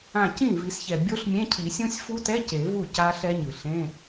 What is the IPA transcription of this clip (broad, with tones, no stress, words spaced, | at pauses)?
ã˧˩cĩ˥˩vi˨˩˦sçɛ˩ bʲo˦˥ɬmʲẽ˧˥˧cʰi˨˩˦sʲũ˦˥sʲ fu˦˥tɛ˧˥˧ ce˨˩˦vu˥˩ ca˦˥ɬɛ˦˥ɲɯ˩ɬẽ˧˥˧